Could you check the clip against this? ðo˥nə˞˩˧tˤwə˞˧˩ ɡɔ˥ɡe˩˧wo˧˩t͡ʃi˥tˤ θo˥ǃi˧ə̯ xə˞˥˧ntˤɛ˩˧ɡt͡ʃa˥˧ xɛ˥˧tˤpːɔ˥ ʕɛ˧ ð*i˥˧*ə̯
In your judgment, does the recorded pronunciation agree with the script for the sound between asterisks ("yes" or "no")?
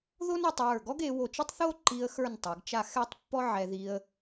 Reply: no